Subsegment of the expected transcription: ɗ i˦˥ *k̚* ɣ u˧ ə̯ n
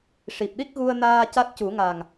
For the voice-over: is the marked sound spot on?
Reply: yes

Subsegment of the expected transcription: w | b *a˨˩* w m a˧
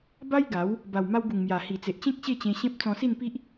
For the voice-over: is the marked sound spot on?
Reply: yes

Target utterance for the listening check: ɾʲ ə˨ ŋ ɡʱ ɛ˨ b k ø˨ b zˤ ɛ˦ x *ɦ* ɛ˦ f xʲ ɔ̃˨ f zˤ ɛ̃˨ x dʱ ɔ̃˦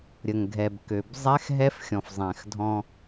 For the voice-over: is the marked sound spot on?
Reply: yes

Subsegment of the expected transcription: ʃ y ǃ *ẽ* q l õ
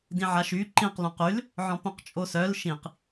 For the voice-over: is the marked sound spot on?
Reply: no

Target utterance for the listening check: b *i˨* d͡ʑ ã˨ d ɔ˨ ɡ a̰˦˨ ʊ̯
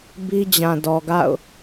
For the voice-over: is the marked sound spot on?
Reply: no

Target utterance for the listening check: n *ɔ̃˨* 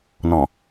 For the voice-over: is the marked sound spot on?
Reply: yes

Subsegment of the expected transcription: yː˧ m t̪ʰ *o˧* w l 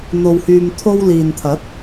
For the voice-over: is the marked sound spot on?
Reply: yes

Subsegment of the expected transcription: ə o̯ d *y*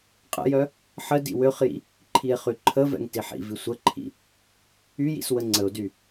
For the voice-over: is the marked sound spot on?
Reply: yes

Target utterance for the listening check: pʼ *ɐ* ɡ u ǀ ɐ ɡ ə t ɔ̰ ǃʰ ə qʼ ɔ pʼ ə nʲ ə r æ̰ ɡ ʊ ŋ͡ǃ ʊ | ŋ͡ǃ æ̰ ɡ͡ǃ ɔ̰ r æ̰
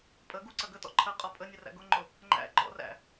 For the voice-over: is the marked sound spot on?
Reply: no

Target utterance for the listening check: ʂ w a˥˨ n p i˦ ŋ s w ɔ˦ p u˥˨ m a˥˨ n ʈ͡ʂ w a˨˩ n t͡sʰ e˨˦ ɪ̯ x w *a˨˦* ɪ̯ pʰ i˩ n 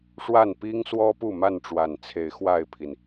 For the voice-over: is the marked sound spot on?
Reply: no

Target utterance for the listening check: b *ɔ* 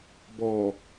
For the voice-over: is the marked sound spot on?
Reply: yes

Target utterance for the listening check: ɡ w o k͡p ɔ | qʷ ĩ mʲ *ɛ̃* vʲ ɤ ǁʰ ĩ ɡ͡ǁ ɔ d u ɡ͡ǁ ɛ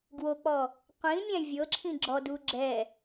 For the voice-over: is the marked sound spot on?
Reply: yes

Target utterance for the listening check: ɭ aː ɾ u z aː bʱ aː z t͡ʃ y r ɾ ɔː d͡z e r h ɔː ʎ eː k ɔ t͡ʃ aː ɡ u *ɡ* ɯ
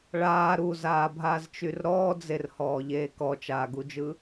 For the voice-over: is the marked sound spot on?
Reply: no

